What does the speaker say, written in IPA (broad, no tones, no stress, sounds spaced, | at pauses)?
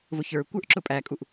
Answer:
v ʊ ç ə˞ kʷ ə˞ ʔ ǁ ʊ pʼ æ kʼ u ʔ